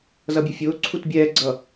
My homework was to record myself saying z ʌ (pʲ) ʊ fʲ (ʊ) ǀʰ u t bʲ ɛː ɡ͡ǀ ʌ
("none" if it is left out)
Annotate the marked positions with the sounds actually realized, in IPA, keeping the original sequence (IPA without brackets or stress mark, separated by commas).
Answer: bʲ, ʊː